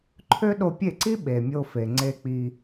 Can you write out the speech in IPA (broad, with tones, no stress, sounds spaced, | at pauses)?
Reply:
ǃʰ ø˦ ɗ o˧ pʲ e˦˨ ǀ i˦ ɓ e˨ mʲ o˧ f e˨ ŋ͡ǀ e˧ k͡p i˧